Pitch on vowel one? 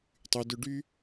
high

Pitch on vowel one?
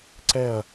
falling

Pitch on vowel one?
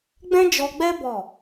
high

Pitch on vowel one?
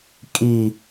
low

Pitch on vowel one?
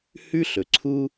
high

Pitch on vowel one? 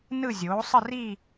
falling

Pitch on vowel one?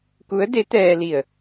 rising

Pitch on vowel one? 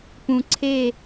low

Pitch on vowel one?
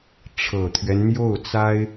low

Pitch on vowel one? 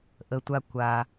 low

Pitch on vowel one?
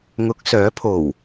rising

